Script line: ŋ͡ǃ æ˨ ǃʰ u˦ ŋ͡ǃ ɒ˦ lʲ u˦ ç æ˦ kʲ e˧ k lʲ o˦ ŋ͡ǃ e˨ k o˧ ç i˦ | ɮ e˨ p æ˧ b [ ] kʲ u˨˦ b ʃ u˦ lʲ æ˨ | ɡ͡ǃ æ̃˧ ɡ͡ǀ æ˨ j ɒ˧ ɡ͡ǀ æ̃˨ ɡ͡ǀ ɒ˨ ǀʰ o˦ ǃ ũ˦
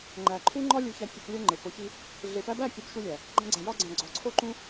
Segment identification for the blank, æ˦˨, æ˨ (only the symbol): æ˦˨